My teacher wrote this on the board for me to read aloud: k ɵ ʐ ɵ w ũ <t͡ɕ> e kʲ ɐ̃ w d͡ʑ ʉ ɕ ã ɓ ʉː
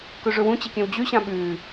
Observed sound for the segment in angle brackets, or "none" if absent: t͡ɕ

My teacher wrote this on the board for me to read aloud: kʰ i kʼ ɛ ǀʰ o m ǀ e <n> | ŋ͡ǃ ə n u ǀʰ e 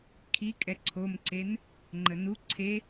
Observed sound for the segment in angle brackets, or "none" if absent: n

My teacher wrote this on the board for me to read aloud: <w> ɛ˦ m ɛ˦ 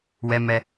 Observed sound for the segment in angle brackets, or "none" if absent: w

